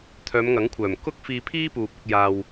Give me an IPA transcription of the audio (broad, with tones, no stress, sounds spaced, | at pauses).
t̪ʰ œː˨˧ m ŋ ɐ˨˥ ŋ kʷʰ œː˨˩ m k ʊ˥ k̚ f iː˧ pʰ iː˥ p uː˨ p̚ ʊ˧ k̚ j aː˧ w